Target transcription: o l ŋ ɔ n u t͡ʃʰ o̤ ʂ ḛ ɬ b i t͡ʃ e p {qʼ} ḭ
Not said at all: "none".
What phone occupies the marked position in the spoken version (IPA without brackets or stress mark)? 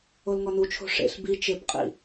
qʼ